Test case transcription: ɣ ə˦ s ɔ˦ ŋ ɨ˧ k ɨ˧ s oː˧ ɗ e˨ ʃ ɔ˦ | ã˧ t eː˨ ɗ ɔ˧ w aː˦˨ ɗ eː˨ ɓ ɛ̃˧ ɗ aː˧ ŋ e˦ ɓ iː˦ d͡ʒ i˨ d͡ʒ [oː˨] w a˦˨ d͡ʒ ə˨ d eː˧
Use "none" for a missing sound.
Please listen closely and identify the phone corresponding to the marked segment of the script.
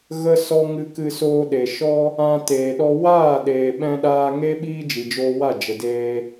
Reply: oː˧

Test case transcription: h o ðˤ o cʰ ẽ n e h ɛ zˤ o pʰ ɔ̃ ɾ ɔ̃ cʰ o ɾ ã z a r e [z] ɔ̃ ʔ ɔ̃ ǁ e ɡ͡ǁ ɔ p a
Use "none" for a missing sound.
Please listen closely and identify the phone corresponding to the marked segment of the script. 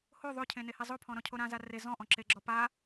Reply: z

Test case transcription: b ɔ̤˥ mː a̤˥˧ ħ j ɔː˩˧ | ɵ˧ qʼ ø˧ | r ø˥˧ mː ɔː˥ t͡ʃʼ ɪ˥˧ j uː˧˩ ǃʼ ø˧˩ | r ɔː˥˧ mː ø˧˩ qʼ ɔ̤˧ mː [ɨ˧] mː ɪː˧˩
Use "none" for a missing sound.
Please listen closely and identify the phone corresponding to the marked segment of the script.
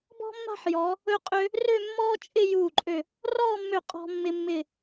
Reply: ɪ˧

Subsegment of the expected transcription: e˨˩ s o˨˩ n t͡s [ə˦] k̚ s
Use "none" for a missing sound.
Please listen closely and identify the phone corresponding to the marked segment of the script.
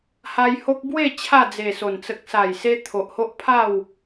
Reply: ə˨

